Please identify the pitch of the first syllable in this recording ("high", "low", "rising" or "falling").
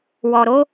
low